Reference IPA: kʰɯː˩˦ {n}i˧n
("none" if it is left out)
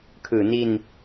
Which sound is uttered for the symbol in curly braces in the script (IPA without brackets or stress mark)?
n